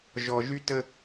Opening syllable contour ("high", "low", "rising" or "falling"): low